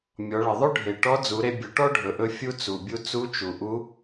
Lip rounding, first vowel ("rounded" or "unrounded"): rounded